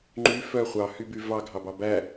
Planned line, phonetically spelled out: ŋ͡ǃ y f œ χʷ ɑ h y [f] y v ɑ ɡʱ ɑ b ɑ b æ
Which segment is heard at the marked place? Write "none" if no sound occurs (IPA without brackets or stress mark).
b